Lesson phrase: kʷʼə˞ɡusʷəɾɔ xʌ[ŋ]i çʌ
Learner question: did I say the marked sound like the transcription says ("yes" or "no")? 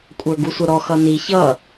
no